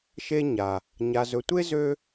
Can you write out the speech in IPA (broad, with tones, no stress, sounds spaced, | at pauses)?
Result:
ʃ e˦ ɲ a˩ | ɲ a˨ z ɵ˨ tʷ e˥ z ø˦